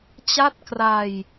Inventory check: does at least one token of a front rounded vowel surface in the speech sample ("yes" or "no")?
no